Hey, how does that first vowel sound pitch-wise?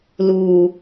low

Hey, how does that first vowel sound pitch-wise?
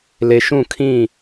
low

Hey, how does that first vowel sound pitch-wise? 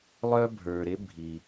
high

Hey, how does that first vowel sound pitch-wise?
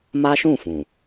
high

